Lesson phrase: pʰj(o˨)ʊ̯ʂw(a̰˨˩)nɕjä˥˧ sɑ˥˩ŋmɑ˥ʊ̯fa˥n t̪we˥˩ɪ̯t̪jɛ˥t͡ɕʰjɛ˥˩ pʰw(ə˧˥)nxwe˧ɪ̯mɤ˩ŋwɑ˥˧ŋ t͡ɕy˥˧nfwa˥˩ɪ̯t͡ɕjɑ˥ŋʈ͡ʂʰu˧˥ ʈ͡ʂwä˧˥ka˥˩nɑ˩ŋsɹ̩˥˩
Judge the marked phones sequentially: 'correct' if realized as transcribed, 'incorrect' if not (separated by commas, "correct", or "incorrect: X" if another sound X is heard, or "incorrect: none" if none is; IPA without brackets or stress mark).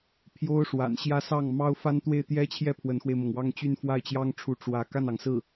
incorrect: o˥, correct, correct